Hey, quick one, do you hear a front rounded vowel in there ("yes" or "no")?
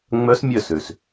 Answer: yes